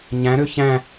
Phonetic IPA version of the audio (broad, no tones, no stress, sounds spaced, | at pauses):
ɲ æ̃ ɾ ø ç æ̃